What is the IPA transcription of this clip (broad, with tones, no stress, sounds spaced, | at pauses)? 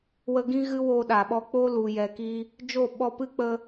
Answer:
w ə˧ ɡ ĩ˦ ɣ ɨ˦ w o˧ ɗ a˨ ɓ ɔ˧ k͡p o˦ l u˨ j ɛ˨ k i˧ | d͡ʒ o˦˨ ɓ ɔ˧ p ɨ˦ k͡p ə˧